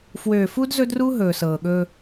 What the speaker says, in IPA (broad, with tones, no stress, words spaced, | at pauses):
fwøː˨fu˦d zɵ˦dru˦ ɦɵː˨sɤː˨ɠɵː˦